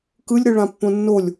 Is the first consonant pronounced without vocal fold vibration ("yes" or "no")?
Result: yes